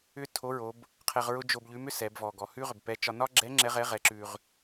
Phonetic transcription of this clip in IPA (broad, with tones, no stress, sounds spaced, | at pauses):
ʏ˥ tʰ o˧˥ ɹ o˩˧ b | qʰ ɛ˧ ʁ ɹ ʊ˥ d͡ʒ o˧ b ʎ ʉ˧˥ m ʏ˥ s ɛ˩˧ b v ɔ˩ ɡ ɔ˩ h ʉ˥ ʁ ʏ˩ b p ɛ˧˥ t͡ʃ ɒ˧ n ɒ˥ ɡ͡ǁ ɛ˧˥ ŋ͡ǁ ɛ˧˥ ʁ ɛ˧˥ ʁ ɛ˩˧ ǁ ʉ˩ ʁ